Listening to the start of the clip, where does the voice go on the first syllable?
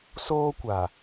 high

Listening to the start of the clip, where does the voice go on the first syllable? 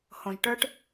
low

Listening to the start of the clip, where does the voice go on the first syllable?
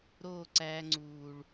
falling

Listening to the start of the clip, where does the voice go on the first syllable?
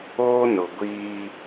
high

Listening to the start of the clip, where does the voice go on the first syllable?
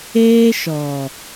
high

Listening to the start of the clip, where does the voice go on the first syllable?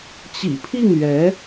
low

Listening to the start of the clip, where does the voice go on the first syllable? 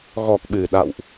low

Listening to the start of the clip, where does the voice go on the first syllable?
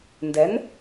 rising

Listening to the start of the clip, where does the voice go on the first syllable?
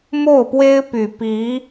falling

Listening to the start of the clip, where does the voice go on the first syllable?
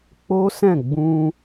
high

